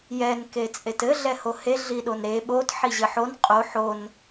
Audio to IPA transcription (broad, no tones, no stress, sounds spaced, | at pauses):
j ɛ n k e t͡sʼ e t ɘ ɮ ɛ h o h e ɮ i ɗ o n ɾ e ɓ o t ħ i ʑ ɘ ħ o n qʼ o ħ o n